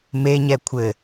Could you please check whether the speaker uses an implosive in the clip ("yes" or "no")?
no